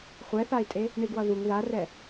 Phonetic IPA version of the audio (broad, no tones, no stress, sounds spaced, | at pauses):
χʷ ɛ θ a i̯ tʼ e | ɳ i ɡ w ʌ ð u ŋ ð a r ɛ